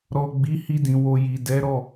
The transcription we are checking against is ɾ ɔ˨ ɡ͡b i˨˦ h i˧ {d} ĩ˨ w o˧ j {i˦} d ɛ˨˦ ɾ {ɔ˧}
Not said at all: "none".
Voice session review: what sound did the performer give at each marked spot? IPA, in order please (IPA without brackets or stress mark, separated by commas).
d, i˨, ɔ˦˨